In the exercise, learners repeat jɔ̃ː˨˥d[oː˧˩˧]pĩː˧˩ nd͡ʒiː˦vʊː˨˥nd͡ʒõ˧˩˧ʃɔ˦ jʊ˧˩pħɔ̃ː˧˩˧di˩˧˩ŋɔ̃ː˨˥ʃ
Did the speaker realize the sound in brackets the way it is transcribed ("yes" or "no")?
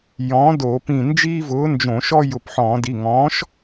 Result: yes